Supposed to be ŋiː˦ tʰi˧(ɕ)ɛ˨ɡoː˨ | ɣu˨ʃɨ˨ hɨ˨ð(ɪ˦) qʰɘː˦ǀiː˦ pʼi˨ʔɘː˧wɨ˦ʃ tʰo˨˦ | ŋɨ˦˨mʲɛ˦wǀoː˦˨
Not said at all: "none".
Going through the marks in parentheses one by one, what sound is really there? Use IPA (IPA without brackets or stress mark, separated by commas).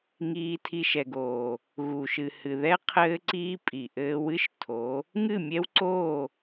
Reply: ʃ, ɛ˦